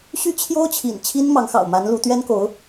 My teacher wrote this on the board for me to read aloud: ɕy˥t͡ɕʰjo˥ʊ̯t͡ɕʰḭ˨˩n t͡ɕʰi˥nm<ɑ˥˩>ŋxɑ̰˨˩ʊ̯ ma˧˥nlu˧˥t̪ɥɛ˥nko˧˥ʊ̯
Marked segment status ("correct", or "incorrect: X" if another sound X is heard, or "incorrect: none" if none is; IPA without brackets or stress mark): incorrect: ɑ˧˥